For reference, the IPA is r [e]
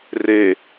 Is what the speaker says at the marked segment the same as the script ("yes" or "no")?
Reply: yes